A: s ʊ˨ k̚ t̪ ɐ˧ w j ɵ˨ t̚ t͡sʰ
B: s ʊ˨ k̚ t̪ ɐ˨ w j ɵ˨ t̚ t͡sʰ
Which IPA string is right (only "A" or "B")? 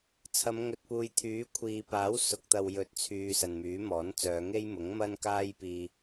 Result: B